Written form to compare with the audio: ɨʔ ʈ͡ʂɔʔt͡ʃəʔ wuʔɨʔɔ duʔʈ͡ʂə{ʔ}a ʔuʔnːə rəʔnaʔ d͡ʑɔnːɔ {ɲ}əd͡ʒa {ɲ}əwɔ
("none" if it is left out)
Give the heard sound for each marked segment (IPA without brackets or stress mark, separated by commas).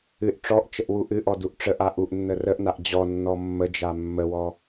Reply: ʔ, mː, mː